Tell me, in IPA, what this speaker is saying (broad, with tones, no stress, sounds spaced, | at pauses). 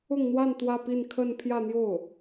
ʊ˥˧ ŋ n̪ w a˥˧ n t̪ w ä˥˧ p i˥˧ n kʰ ə˥˧ n pʰ j ä˥˧ n̪ j o˥˩ ʊ̯